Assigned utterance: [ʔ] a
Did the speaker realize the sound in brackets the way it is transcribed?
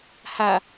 no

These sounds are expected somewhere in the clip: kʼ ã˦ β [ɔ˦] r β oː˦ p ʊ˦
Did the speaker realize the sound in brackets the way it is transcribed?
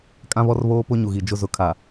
yes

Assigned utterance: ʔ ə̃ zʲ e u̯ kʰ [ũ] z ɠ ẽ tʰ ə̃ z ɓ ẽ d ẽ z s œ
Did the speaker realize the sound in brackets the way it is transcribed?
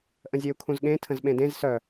yes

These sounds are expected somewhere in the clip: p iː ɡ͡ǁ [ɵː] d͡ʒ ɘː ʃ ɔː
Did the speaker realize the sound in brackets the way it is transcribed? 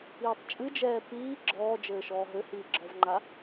no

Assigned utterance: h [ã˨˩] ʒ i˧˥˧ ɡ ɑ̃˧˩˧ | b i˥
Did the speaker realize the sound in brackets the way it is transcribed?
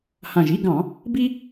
yes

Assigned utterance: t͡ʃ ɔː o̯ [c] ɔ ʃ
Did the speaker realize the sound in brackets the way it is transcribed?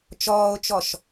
no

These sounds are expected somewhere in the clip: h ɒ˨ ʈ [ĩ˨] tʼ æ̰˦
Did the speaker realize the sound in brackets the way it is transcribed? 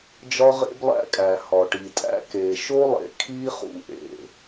no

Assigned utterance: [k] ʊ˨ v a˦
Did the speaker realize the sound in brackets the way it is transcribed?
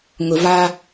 no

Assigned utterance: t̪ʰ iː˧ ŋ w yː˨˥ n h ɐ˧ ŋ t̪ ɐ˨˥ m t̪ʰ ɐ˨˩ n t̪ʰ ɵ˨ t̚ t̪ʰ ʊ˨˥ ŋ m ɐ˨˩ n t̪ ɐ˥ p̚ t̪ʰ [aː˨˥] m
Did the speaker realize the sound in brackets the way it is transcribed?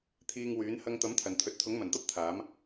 yes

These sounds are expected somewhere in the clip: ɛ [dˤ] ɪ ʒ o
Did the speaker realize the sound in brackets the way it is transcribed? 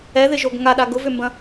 no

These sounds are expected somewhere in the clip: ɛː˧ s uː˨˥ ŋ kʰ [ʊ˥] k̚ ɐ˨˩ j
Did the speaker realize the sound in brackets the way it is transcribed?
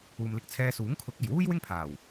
no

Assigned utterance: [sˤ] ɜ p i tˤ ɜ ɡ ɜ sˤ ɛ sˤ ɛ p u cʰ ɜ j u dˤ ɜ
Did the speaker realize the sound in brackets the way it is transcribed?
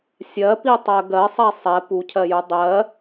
no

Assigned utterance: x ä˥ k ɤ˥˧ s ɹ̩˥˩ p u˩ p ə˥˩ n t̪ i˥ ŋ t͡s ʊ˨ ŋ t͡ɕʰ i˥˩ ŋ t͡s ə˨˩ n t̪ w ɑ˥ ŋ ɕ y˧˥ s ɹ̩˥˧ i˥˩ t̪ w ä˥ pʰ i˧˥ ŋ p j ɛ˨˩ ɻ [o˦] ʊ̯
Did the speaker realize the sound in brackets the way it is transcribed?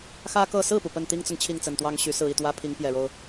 yes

